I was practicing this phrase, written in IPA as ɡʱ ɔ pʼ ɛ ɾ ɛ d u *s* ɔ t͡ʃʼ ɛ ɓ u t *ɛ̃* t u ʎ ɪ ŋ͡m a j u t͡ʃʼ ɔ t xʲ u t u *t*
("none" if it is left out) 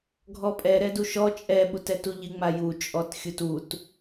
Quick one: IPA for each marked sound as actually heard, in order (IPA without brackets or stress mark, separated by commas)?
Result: ʃ, ɛ, t